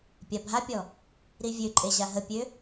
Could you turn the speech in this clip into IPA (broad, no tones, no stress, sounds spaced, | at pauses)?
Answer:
pʲ a bʱ a pʲ ɔ | ɾ i vʲ ø ǃʼ e ʑ a ɦ ə pʲ ø